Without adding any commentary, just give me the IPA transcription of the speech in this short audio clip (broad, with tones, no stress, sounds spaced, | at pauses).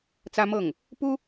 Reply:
t͡s ä˥ m ɤ˥˩ ŋ | p u˥